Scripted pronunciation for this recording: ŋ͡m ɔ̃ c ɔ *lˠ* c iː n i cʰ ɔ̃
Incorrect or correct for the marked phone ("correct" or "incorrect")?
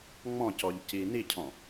incorrect